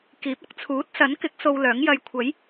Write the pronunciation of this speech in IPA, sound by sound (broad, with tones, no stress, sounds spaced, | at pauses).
k iː˨˥ p̚ ɐ˨˥ k̚ t͡sʰ uː˨˥ t̚ s ɐ˨˥ n k ɪ˨˥ k̚ s o˧ w l œː˨˥ ŋ j ɐ˧ j kʷʰ ɐ˨˥ j